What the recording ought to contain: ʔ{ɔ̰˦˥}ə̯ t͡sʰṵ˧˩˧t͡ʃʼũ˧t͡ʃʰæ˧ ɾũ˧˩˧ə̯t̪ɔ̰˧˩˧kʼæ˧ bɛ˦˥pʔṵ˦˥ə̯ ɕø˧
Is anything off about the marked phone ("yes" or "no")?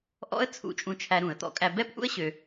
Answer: no